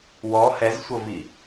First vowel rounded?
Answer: yes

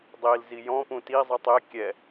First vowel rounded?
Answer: no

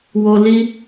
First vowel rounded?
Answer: yes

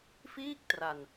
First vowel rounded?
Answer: no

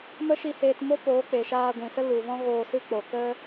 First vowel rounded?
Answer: no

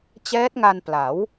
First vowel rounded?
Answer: no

